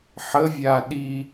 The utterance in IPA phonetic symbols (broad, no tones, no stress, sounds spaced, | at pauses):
ħ ə vʲ a ɗ i